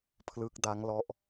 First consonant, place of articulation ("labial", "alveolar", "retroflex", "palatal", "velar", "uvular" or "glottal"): labial